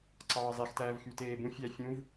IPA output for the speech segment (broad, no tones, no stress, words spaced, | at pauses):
ǀɑːzˤextæːv xyteːbũ fʲæ fʲũv